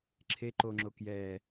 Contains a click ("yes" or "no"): yes